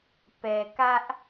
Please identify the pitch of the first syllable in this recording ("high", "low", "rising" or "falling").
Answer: low